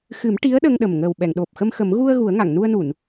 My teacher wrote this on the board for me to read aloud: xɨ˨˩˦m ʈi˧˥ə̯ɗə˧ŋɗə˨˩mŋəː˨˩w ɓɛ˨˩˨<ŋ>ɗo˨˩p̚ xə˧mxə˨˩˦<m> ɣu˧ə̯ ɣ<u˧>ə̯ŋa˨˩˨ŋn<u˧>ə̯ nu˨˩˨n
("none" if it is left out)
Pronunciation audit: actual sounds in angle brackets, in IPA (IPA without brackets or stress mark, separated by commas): ŋ, m, u˨˩˦, u˧